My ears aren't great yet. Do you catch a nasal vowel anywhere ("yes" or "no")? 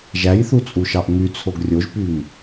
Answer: no